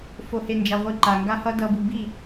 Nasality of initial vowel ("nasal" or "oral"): oral